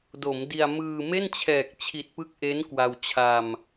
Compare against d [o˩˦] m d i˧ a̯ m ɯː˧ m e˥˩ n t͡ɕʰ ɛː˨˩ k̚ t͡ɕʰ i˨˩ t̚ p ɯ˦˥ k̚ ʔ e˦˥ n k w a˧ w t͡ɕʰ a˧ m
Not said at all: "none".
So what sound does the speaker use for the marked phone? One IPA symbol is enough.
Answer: o˩˦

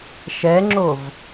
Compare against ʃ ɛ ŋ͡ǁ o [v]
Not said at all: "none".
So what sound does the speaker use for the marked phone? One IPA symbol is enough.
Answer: v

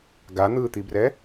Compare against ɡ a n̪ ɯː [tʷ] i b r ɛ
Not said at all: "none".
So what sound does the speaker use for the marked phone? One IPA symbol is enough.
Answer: t̪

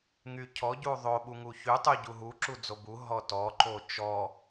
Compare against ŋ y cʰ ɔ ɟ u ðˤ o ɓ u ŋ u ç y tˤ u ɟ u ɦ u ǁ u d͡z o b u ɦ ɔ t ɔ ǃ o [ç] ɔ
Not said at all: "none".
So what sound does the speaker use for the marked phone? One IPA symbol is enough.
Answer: t͡ʃ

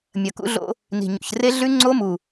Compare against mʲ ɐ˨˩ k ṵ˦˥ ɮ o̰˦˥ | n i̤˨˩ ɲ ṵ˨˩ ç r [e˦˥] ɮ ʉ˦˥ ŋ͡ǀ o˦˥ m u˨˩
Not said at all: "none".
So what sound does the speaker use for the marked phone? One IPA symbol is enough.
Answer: e˦˥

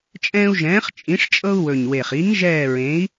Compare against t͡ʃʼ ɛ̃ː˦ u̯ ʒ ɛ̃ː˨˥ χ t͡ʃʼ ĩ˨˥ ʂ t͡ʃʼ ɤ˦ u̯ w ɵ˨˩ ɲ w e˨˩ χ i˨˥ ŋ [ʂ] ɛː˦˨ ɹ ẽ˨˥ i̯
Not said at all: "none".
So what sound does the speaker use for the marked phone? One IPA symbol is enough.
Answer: ʒ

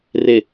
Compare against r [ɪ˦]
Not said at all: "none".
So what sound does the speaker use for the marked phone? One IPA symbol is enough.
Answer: ɪ˨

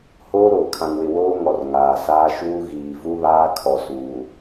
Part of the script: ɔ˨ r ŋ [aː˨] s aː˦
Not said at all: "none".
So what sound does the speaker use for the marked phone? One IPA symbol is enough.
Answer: aː˨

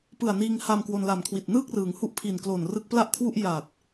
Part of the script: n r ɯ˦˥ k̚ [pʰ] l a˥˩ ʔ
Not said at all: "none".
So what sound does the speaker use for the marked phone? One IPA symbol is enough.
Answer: p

